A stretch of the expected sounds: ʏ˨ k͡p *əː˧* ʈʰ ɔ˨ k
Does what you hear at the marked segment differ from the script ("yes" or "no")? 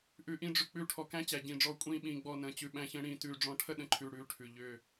yes